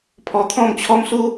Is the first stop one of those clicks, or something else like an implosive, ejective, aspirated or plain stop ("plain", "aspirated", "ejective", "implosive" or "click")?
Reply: aspirated